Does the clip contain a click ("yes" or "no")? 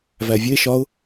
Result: no